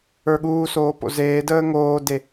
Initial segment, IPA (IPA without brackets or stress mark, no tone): ə˞